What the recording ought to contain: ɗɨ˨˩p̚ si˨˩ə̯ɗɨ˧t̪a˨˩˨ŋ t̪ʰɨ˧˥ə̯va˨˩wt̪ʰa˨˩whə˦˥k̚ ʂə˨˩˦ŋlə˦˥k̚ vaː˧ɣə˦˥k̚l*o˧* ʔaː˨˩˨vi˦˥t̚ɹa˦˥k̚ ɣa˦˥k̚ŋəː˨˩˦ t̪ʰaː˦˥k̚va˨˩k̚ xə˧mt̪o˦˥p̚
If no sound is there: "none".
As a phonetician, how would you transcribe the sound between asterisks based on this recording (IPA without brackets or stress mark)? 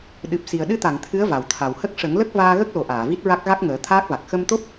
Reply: o˨˩